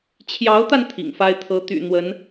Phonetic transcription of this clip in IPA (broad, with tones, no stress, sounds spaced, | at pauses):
t͡ɕʰ j ɑ˧˥ ʊ̯ t̪ a˧ n t̪ʰ ḭ˨˩ ŋ f a˥ ɪ̯ t̪ʰ ɤ˧˥ t̪ y̰˨˩ n̪ w ə˧˥ n